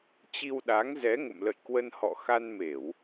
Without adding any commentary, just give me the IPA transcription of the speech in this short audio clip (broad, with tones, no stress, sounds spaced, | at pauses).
t͡ɕ i˧ w ɗ a˨˦ ŋ z ɛ˨˦ ŋ ə̰˧˨ m l ə̰˧˨ j k w ə˧ n h ɔ̰˧˨ x a˧ n m e˧˩˨ w